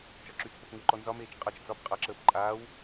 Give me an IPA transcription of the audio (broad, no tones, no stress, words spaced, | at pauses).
t͡ʃɒǁyt͡ʃpɔp ŋeǃɔnzɒmeːt͡ʃ qʼʌt͡ʃ d͡zɒp qʼʌǁəːp ǃʼaːw